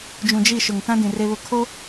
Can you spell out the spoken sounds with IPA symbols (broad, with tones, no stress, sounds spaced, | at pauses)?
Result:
d͡ʒ ũ˨ d͡ʒ i˦˨ ʃ ʊ˨ ŋ t ã˦ d ĩ˨ r e˦ β ʊ˦˨ kʰ o˦